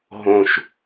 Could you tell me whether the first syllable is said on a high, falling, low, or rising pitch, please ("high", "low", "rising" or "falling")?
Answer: low